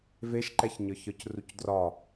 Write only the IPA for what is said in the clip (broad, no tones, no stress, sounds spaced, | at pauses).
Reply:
v e ʃ ǃ ɛ ç ɲ ə˞ ç ə˞ c r u c d r ɒ